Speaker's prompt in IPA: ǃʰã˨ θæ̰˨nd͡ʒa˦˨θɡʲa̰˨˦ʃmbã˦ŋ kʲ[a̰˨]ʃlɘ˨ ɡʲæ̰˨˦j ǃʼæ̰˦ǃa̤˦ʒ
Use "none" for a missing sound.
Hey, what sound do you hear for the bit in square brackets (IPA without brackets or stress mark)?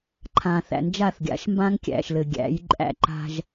æ̰˨